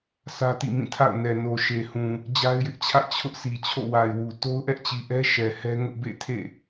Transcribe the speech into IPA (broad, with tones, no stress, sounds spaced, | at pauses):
s ä˦ t ḭ˦˨ m ĩ˦˨ tʰ a̰˦˨ ʊ̯ n ɛ˨ n o˨ ʃ e˨ h ũ˨ | d͡ʑ a˦ ɪ̯ j ɪ˦ ʔ t͡ɕʰ ä̰˦˨ t͡ɕʰ ʊ˦ ʔ s i˨ t͡ɕʰ o̰˦˨ w a˨ ɪ̯ w u˨ t o˦ ʊ̯ ʔ ɛ˦ ʔ t͡ɕ i˨ ʔ ɛ˦ ʃ ɛ˨ h ɛ˦ ŋ ʊ˦ ʔ b ḛ˦˨ tʰ ḛ˦˨